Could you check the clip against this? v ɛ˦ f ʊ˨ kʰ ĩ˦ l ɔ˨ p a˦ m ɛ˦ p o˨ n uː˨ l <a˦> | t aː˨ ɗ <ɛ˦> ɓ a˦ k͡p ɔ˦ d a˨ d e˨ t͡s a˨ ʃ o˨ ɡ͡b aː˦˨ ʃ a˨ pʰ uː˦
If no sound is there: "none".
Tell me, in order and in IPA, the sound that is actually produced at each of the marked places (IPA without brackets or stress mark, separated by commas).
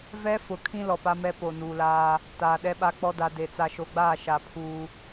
aː˦, ɛ˦